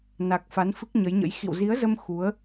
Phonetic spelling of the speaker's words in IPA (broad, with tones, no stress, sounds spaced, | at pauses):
n a˨˩ k̚ f a˨˦ n f ɨ˦˥ k̚ ɲ ə˨˦ j ɲ ə̰˧˥ j x ḭ˧˨ w z i˨˦ ə̯ z ə˧ m x u˨˦ ə̯